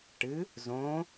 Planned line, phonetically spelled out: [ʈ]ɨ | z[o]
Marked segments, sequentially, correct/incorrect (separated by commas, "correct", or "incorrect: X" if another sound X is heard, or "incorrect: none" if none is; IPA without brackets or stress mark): correct, incorrect: õ